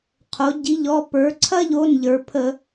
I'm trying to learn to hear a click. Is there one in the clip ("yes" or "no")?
yes